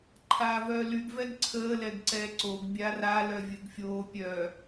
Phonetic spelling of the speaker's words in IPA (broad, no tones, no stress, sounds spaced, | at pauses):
ǃʰ aː v œː l y ɡ v ɛ ɡ ǀʰ əː l ɛ ɡ ǀ ɛː ǀ o ɡ bʲ a r a l œ vʲ ə ɡ fʲ oː pʲ œ